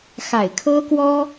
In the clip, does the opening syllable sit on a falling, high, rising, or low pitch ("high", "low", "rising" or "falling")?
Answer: low